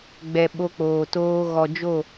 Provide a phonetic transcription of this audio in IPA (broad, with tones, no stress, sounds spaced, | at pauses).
ɡ͡b ɛ˨ ɓ o˧ k͡p oː˨ t oː˧ ɣ ɔ˨ d͡ʒ o˦˨